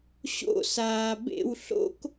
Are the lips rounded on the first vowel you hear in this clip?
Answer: yes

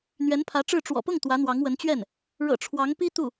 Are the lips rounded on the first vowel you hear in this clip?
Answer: no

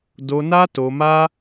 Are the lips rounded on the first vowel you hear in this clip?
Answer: yes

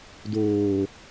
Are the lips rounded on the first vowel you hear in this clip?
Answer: yes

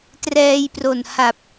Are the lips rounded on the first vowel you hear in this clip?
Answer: no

